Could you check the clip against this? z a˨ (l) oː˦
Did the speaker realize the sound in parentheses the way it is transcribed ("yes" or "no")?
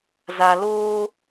yes